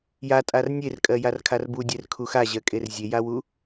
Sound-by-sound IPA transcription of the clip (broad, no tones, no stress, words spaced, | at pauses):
jatʼar nʲerkʼɜ jarkʰarbudʲɛr kʰuxaʑɜkʼer zʲejawu